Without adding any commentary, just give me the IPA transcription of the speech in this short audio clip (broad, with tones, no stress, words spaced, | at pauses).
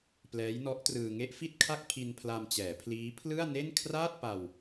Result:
plɛː˦˥jnɔ˦˥ʔtrɯː˧ ŋe˦˥ʔfi˥˩t̚kʰa˥˩k̚ pʰi˧npʰla˧mt͡ɕɛː˩˦pʰliː˦˥ pʰlɯ˥˩a̯ne˥˩n kʰraː˥˩t̚ pa˧w